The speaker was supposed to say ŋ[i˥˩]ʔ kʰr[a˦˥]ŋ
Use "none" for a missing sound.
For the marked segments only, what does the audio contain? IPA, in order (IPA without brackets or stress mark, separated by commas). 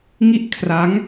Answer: i˥˩, a˦˥